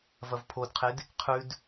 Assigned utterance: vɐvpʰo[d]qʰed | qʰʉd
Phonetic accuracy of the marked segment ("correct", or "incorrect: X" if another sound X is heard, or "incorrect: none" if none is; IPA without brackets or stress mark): correct